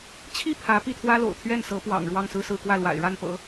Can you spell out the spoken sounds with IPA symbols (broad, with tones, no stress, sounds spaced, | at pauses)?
t͡ɕʰ i˥˩ pʰ ä˧˥ p i˥˩ t̪ʰ w ä˥ l o̰˨˩ ʊ̯ t̪ʰ ɥ ɛ˥˩ n s ɤ˧˥ p w ɑ̰˨˩ ŋ ɻ w ɑ˥˧ ŋ s ɹ̩˥˧ s ɹ̩˥˧ k w ä˥˩ l w a̰˨˩ ɪ̯ ɻ a˥˩ n p ɤ̰˨˩˦